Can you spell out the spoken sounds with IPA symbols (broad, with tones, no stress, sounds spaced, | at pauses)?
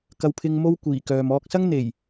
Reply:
k ɐ˧ w pʰ ɪ˧ ŋ m o˥ w kʷ iː˨˩ k œː˨ m ɔː˧ k̚ s ɐ˥ ŋ n̪ e˨˩ j